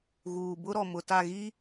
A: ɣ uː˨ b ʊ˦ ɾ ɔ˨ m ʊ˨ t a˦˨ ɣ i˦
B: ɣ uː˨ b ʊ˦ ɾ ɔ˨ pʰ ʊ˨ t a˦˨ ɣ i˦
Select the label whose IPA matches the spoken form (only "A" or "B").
A